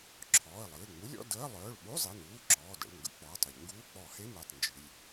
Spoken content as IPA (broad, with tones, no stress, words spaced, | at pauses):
ǁʰɔː˩˧˩ə̯lˠɨː˩˧˩ŋ͡mu˧˥˧lʲɔ̰˧˥˧ dəː˧˥˧ lˠœː˩˧˩ɭɓu˧˥˧zˤi˩˧˩nuː˩˧˩ ǁɔː˩˧˩də̰˩˧˩ɭŋɡə̰˧˩˧ k͡pɔː˩˧˩tˤə˧˩˧ʎŋɡuː˧˥˧ k͡pɔ˧˩˧he˧˥˧me˩˧˩tˤ nd͡ʒɨ˩˧˩lʲ